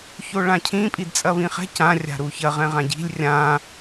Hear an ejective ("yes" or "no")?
yes